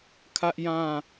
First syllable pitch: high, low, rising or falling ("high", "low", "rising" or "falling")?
high